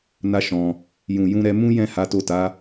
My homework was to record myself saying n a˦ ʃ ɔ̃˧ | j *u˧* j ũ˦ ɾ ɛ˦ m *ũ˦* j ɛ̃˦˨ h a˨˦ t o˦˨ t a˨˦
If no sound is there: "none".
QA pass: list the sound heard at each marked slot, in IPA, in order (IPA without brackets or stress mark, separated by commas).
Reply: ũ˧, ũ˦